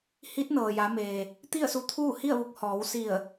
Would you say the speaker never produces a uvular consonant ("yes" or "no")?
yes